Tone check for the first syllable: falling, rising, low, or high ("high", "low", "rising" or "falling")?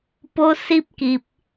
high